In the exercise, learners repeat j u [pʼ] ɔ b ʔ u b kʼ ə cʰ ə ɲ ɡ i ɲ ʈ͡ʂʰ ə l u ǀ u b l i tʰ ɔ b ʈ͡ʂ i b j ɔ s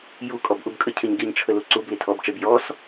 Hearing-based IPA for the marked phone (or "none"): kʼ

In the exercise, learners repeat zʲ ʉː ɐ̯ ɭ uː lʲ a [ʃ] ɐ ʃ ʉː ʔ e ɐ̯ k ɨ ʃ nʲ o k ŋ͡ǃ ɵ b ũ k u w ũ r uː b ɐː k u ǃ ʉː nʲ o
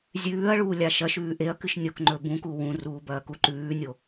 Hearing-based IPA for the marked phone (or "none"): ʃ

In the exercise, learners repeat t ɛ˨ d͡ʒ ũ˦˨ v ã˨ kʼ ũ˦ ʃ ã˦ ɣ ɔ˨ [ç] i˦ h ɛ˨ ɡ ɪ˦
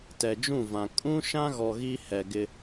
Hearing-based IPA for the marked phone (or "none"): ɣ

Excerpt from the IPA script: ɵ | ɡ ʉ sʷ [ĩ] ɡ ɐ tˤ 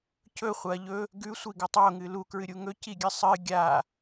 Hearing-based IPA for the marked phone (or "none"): i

